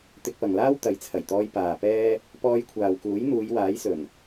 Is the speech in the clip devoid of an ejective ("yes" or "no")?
yes